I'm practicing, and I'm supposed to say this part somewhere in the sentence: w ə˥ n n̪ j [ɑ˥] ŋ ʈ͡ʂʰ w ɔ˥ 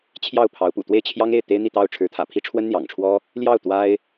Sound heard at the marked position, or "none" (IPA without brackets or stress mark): ɑ̰˨˩